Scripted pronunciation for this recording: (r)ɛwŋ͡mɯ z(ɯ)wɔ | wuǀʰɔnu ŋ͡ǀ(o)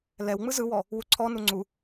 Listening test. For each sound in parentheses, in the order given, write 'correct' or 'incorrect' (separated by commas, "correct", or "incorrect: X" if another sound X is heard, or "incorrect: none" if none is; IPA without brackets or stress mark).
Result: incorrect: l, correct, incorrect: u